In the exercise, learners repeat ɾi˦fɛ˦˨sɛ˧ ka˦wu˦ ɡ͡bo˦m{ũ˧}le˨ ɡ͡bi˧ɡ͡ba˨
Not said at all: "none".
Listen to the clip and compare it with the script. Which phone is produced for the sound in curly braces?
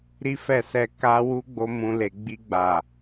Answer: ũ˧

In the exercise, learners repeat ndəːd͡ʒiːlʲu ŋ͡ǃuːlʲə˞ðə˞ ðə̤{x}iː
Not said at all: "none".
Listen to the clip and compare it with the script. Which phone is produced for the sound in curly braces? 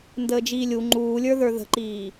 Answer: ǃ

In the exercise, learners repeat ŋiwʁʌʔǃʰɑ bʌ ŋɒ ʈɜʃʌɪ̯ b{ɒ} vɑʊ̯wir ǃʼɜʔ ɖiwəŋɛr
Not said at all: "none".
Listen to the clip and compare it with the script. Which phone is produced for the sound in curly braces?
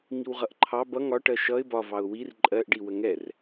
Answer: ɒ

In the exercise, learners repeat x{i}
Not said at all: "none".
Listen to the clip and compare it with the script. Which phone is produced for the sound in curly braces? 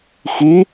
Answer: i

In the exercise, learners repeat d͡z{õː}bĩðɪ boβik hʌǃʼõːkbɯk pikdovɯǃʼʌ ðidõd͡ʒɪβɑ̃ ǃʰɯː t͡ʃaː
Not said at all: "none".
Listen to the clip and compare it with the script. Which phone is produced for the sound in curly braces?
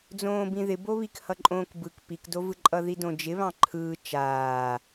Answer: õː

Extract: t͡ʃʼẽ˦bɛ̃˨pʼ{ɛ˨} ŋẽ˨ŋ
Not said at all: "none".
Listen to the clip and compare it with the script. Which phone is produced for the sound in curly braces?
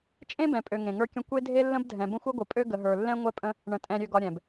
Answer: ø˨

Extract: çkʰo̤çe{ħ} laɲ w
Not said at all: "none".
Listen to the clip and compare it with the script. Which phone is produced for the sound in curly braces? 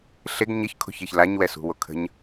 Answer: ç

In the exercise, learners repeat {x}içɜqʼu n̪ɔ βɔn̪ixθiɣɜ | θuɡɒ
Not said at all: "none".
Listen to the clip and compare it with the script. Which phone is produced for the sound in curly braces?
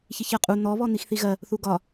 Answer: ç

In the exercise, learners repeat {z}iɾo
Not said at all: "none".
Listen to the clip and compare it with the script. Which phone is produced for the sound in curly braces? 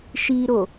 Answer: ʃ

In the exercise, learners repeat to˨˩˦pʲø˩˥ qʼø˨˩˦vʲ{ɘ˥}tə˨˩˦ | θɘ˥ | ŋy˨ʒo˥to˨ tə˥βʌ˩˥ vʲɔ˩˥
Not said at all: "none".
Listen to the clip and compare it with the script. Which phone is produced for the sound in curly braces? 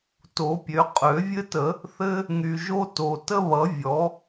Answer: ɘ˥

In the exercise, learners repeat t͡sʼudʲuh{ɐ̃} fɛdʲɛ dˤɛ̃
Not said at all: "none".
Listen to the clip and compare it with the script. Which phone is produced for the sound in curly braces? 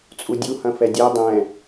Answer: ɐ̃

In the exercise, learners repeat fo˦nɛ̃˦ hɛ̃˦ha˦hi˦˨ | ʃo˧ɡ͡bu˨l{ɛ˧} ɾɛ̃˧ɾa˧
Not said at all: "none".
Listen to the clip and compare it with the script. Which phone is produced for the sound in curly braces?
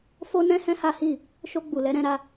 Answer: ɛ˧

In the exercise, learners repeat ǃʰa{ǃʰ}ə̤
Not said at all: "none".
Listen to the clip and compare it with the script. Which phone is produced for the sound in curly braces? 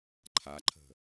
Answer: ǃʰ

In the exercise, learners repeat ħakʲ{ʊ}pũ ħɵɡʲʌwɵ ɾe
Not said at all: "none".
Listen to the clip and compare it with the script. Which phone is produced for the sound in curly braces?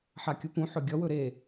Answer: ʊ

